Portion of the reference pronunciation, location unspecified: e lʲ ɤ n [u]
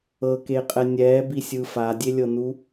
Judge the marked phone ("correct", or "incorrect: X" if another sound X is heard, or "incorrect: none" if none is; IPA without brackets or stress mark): correct